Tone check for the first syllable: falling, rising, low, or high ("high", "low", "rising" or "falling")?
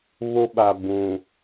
high